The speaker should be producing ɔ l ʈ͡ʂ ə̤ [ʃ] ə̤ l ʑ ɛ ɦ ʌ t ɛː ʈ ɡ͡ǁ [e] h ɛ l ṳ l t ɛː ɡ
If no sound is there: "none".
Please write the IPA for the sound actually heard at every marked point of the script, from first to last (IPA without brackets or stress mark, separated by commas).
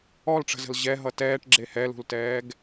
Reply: z, e